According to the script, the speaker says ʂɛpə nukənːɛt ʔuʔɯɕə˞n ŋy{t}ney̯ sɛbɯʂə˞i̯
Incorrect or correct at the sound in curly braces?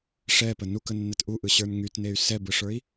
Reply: correct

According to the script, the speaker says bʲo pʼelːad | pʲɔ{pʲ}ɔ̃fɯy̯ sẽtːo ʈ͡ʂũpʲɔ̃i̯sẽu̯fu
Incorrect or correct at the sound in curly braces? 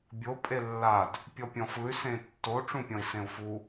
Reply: correct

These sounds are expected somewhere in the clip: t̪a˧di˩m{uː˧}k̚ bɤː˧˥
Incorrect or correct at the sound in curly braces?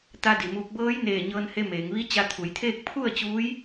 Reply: correct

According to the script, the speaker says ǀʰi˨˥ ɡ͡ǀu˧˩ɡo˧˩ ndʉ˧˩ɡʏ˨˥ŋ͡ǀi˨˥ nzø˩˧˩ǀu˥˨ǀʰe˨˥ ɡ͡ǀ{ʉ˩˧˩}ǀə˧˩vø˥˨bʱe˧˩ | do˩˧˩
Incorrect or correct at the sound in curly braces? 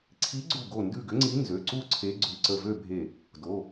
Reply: correct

